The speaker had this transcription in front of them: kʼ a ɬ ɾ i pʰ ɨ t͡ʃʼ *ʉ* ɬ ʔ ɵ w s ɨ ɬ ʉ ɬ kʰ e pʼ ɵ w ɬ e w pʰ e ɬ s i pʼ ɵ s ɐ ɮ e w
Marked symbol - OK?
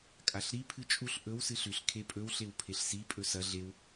no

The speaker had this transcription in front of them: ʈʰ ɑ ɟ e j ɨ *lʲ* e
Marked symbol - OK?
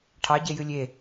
yes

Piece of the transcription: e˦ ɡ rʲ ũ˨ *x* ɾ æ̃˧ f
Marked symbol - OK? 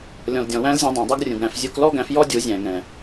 no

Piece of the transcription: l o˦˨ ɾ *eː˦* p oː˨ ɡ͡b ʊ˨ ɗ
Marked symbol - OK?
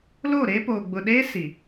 yes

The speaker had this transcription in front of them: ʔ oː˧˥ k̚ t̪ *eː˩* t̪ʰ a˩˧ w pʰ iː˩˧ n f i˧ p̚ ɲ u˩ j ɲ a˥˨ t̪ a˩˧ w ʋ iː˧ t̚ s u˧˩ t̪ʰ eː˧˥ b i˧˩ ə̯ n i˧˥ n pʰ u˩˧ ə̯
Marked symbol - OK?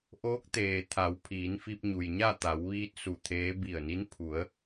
yes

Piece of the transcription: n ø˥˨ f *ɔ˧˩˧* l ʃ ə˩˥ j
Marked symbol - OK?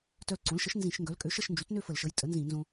no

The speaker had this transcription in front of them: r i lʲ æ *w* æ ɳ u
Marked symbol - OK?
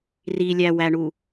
yes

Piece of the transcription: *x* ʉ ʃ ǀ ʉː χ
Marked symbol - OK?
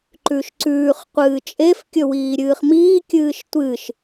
no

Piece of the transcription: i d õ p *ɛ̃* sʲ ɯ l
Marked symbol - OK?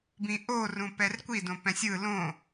yes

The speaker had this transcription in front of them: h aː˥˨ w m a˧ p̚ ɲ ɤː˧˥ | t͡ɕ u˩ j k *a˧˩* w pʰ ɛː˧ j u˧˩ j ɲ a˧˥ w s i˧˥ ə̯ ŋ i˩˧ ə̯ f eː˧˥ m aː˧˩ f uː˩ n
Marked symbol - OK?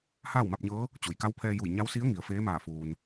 no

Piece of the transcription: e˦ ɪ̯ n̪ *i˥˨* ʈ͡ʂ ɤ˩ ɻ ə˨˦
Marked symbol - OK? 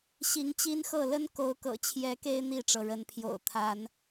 yes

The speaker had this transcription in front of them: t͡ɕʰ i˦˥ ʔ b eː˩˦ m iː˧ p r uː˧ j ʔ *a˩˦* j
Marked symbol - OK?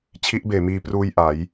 yes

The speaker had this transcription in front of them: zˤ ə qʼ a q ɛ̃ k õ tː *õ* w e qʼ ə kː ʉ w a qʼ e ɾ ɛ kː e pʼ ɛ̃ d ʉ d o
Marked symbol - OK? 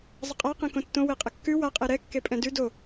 yes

